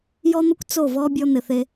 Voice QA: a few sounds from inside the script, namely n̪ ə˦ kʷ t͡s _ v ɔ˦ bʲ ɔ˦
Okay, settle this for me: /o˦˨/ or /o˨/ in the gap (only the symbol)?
o˦˨